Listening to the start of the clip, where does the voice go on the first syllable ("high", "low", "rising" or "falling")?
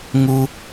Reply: high